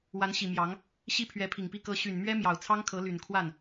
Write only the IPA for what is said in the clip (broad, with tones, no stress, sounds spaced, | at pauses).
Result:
w a˧˥ n ɕ i˨˩ m j ɑ˧˥ ŋ | ɕ i˥ pʰ ɥ ɛ˧˥ pʰ i˨˩ ŋ p i˥˩ k ɤ˧˥ ɕ y˨˩ n m ɥ ɛ˥ m j ɑ˨˩ ʊ̯ t͡sʰ ɑ˥ ŋ kʰ ɤ˧˥ l y˨˩ n kʰ w a˥˩ n